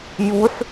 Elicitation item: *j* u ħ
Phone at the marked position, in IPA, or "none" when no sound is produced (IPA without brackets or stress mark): j